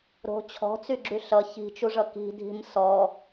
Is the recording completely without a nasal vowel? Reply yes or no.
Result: yes